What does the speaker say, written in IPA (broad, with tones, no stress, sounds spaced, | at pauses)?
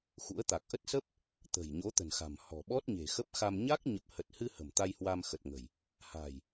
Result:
x ṵ˧˥ ə̯ t̪ a˨˩ k̚ ʔ ə˦˥ t̚ s ə˦˥ p̚ | t̪ ə̤˨˩ j ɲ o˨˦ t̪ ə̤˨˩ n x a̤˨˩ m h ɔ̤˨˩ ɓ ɔ˦˥ t̚ ɲ e̤˨˩ x ə˦˥ p̚ x a˧ m ɲ a˦˥ k̚ ɲ ə˨˩ p̚ h ə˨˩ t̚ h ɨ˧ h ə̤˨˩ m t̪ a˧ j h w a˧ m x ə˨˩ t̚ ŋ ə̤˨˩ j | h a̤˨˩ j